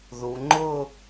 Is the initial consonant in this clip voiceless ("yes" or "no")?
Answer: no